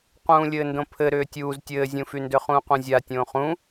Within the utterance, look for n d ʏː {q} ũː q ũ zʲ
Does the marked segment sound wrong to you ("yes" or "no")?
yes